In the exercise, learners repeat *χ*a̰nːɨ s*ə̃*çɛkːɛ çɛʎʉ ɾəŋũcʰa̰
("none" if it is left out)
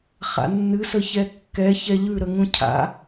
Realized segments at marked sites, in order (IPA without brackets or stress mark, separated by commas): χ, ə